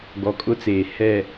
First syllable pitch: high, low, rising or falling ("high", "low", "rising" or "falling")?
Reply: low